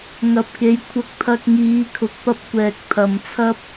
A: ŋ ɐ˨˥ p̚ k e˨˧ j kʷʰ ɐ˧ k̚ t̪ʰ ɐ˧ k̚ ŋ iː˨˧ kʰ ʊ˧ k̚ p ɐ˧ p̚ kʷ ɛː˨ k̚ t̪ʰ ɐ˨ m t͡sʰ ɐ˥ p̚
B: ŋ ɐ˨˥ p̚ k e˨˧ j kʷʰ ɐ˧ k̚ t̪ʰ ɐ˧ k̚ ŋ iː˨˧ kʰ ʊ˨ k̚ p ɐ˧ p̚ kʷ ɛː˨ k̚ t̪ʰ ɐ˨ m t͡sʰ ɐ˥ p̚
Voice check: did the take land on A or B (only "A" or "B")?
B